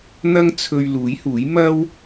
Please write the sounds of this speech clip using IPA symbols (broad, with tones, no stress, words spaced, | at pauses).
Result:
n̪ɐ˥ŋ t͡sʰɵ˧ɥ luː˨˥jhuː˨˥j mɐ˥w